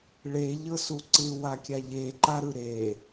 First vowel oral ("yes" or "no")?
yes